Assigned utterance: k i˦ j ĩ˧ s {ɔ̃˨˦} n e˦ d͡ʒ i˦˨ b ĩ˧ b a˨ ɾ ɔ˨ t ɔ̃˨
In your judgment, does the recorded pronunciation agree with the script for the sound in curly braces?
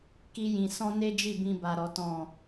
no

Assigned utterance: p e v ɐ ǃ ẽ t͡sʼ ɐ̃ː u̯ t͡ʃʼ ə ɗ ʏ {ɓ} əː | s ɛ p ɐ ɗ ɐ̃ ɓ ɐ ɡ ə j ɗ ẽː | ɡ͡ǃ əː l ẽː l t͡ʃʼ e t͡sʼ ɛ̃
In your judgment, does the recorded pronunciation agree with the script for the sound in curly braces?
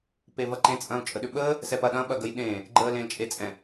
yes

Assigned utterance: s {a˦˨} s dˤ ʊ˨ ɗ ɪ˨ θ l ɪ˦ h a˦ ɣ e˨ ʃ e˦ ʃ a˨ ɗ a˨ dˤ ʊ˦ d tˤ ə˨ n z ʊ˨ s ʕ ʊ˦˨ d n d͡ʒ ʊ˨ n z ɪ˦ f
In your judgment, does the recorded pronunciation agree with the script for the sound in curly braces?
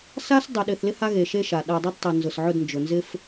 no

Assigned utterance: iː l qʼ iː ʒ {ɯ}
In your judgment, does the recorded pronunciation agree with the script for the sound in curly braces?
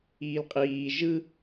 yes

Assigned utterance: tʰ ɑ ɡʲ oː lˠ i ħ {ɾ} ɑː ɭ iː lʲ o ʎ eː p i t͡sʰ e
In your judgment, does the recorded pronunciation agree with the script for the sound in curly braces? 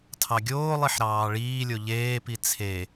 yes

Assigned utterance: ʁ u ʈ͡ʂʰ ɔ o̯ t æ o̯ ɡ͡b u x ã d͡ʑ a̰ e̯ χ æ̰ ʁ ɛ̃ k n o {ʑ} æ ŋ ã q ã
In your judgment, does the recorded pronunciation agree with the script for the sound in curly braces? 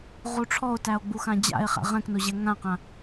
yes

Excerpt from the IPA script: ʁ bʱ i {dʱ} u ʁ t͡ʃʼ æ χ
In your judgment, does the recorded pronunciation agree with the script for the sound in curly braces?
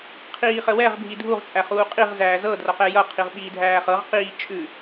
yes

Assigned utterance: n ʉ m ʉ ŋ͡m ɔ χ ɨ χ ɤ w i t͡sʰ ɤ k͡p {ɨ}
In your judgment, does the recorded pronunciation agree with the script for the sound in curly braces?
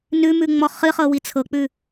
no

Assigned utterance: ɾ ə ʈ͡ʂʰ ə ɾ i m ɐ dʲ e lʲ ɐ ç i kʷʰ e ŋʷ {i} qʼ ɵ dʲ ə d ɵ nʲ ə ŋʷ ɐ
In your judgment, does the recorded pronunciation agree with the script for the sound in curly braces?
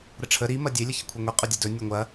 yes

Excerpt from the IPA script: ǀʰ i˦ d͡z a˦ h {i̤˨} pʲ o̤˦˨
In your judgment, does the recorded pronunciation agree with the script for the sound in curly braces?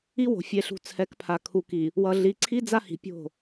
yes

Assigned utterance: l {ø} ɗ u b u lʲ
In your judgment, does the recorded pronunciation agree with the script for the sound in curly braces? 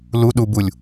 no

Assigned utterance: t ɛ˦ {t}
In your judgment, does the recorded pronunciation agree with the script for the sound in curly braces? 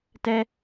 no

